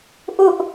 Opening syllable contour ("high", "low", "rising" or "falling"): high